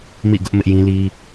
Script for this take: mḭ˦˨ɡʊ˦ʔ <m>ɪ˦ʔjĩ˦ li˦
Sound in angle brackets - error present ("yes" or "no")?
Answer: no